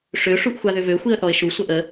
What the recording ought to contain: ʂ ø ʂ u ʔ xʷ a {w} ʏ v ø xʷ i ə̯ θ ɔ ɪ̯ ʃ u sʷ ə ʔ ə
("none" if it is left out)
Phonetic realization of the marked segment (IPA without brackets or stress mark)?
ð